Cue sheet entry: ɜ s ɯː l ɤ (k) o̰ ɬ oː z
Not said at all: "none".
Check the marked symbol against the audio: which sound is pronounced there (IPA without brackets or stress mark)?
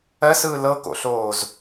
k